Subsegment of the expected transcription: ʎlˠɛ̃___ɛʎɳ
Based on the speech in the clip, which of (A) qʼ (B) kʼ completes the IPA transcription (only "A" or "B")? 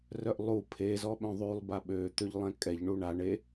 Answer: B